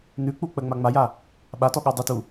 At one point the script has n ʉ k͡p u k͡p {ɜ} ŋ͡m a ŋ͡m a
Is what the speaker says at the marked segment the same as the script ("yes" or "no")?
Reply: yes